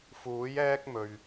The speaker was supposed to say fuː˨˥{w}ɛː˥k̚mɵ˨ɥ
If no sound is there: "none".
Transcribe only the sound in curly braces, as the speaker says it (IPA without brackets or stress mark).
j